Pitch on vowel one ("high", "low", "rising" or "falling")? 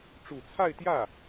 low